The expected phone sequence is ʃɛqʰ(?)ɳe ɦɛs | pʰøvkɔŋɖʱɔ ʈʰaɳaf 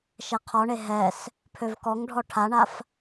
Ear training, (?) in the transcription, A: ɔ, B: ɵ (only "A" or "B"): A